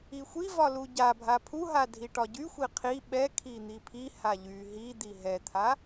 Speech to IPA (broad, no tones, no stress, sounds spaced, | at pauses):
i xʷ i v ɒ l u ɟ a bʱ a pʰ u ɦ a dʱ i ʈ ɒ ɟ y xʷ i qʰ i ɓ ɛ kʰ i n̪ i pʰ i h a ʎ y ɦ i d̪ i ɦ ɛ t̪ʰ a